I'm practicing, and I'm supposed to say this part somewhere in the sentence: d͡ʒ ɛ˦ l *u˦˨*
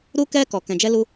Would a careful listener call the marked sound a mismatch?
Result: yes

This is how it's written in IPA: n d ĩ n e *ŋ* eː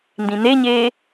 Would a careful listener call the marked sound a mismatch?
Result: yes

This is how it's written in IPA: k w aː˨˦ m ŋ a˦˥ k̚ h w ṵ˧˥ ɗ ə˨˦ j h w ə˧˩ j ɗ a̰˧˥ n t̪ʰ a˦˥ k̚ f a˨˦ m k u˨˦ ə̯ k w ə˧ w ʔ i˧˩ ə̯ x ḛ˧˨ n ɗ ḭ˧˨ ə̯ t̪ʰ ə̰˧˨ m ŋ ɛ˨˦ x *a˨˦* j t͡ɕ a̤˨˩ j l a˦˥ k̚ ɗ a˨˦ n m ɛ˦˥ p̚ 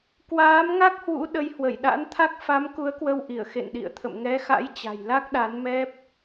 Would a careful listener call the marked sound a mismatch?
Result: yes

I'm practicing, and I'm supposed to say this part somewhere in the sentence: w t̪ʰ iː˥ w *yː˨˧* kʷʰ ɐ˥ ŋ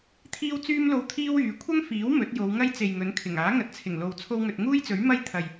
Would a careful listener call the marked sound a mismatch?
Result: no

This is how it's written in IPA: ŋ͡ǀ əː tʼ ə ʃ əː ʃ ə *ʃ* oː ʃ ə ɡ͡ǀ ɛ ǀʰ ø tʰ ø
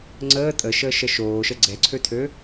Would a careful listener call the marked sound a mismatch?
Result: no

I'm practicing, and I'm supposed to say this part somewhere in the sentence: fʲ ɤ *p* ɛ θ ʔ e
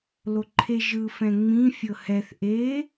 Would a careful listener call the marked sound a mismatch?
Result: yes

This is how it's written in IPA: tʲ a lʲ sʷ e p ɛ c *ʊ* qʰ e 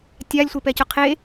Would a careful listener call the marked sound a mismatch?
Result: no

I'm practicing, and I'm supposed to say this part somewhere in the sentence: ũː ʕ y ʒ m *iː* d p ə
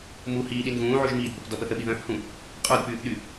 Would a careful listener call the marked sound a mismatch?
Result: no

